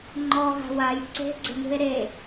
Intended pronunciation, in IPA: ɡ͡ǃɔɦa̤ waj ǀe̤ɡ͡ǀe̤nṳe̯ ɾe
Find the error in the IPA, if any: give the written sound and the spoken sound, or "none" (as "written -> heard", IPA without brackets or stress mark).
ɡ͡ǃ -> ŋ͡ǃ